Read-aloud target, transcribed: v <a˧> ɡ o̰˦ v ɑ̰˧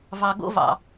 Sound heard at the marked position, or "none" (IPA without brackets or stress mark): ɑ˧